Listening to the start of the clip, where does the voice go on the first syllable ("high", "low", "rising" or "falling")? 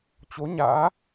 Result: rising